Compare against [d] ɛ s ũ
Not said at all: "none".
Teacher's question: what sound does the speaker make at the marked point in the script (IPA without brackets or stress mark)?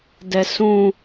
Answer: d